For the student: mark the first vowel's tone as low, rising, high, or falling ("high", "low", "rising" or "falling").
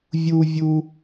high